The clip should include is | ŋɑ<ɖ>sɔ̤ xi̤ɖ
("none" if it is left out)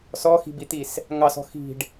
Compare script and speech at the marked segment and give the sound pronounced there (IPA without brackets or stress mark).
none